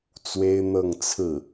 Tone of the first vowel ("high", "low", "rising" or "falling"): high